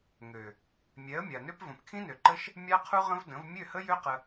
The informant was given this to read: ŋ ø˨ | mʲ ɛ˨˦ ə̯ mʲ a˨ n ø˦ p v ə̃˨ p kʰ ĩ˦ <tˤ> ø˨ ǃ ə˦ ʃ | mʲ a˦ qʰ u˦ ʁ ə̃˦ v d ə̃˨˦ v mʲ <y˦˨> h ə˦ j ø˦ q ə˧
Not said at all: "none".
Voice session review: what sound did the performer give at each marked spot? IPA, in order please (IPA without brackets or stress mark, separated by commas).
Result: n, ø˦˨